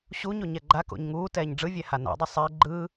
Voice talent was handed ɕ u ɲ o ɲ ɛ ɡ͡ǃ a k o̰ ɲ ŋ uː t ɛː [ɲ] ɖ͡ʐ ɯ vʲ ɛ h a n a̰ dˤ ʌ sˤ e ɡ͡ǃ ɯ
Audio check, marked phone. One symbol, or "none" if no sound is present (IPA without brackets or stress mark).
ɲ